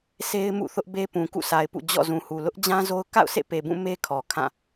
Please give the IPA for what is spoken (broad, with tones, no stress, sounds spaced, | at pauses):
s e˦ ɪ̯ m ṵ˦˨ θ ʊ˦ ʔ b e˦ p ũ˨ k ṵ˦˨ sʰ a˨ ɪ̯ p ṵ˦˨ d͡ʑ ɔ̰˦˨ z ũ˨ h u˨ l ʊ˦ ʔ d͡ʑ ã˦ z o˦ ʊ̯ k a̰˦˨ ʊ̯ sʰ ḛ˦˨ p e˨ b ũ˦˨ m e˦ kʰ ɔ˨ kʰ ã˦˨